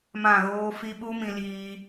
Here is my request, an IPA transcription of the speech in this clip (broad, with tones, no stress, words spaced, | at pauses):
mã˦˨ɣoː˦fi˦ ɓu˦ mĩ˧liː˧